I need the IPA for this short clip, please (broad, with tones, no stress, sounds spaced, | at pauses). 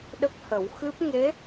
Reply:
ɗ ə˦˥ k̚ h ə˨˩˦ w x ɨ˦˥ p̚ ŋ e˧˥